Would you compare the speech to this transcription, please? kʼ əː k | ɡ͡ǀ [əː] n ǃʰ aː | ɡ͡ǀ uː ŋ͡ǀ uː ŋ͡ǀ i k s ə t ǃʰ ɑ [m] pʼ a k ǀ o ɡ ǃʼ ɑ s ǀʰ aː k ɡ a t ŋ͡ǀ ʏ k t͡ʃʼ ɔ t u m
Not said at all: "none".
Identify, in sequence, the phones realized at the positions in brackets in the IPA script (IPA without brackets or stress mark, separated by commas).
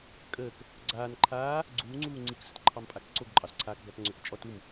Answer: aː, m